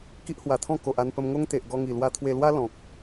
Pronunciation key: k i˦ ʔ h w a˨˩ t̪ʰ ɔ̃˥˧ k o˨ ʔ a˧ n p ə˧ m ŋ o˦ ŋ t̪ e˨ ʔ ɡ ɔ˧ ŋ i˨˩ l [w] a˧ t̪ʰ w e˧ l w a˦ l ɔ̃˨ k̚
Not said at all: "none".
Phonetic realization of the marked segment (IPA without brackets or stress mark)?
w